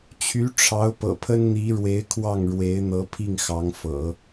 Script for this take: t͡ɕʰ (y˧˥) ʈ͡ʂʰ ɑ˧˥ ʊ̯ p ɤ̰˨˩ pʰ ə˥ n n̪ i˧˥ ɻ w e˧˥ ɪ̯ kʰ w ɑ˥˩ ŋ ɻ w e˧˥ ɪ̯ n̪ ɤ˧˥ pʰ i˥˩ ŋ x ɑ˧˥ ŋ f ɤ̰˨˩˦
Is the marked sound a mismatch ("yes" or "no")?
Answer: no